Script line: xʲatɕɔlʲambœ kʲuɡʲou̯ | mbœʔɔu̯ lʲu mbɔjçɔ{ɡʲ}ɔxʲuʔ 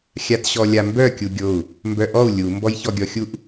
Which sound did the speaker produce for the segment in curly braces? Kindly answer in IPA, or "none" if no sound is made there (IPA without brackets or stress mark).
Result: ɡʲ